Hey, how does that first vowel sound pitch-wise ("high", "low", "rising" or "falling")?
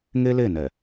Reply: high